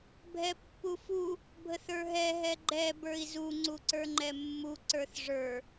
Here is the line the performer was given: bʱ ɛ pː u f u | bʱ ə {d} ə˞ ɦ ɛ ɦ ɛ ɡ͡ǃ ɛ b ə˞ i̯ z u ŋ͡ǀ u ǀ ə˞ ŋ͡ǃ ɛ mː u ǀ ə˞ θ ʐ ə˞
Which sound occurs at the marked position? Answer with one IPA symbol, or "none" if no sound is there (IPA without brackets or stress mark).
θ